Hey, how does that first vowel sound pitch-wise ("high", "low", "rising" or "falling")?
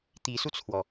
rising